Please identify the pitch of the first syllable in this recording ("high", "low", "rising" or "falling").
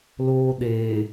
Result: high